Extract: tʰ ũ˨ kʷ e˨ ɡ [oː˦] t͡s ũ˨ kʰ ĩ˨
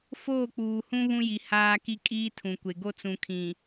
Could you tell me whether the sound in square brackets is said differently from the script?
yes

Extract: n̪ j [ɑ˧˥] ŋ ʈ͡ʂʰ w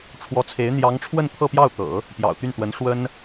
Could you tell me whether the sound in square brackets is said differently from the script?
no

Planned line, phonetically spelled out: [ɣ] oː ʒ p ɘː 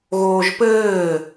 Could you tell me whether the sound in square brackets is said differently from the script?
no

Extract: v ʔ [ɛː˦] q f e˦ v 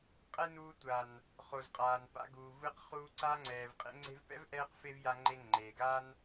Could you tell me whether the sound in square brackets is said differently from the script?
no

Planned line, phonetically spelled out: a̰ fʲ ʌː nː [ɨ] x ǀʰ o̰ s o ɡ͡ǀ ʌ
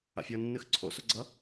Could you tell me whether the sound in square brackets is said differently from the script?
no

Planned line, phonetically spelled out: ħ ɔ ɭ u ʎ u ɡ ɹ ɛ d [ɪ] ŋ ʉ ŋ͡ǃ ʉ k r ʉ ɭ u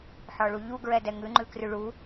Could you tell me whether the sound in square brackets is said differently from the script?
yes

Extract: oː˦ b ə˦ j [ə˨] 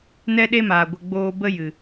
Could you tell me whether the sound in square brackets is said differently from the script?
yes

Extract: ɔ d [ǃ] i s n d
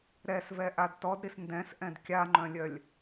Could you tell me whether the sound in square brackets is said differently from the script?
yes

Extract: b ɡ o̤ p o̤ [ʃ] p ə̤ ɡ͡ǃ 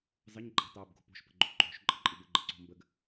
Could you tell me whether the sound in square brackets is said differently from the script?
no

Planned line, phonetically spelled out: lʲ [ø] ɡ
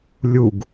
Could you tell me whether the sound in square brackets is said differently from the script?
yes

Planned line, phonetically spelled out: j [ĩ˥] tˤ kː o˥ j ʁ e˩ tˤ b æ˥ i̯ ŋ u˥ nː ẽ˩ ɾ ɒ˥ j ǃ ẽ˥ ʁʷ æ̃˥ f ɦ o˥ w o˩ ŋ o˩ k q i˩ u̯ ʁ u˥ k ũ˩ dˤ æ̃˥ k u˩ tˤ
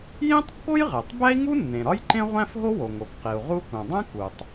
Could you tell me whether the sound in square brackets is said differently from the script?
no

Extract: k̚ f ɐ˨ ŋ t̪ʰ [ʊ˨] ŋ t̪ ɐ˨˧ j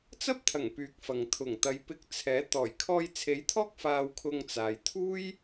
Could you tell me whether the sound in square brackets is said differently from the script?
yes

